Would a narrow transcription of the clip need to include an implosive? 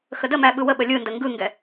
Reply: yes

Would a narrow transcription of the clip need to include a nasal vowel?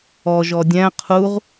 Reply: yes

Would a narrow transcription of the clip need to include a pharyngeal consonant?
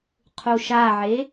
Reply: yes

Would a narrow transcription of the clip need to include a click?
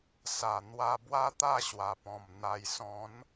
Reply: no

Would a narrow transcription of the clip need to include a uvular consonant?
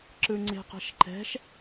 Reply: yes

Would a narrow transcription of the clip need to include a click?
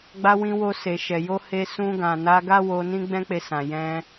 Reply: no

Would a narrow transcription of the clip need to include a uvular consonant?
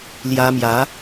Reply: no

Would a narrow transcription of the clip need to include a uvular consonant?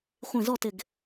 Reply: yes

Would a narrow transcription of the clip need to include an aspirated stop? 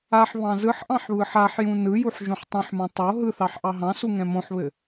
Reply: no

